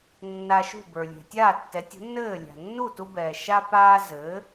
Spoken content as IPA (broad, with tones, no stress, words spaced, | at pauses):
nːa˧ʃṳ˥˩bə˞˩lʲɛ̤˩ tʲaː˥˩tːɛ˩˥tʲṳ˩˥nːɘː˥˩ lʲa̤˩nːu˥˩tu˧bɛː˩ ʃa˧paː˧ zɘː˩˥